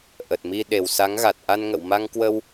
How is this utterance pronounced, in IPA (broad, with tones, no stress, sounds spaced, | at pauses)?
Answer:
ʔ ə˨˩ t̚ m i˧ ɗ e˨˩ w s a˨˦ ŋ ɣ a˨˩ t̚ ʔ a˧ n ŋ ə̰˧˨ w m a˧ ŋ k w ə˧ w